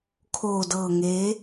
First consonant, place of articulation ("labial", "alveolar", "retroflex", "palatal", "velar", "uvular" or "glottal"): velar